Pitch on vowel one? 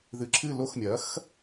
low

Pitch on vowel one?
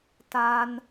high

